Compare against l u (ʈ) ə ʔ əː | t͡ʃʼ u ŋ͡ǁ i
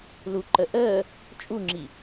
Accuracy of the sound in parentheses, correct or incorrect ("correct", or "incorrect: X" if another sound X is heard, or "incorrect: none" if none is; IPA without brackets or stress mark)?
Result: incorrect: ǃ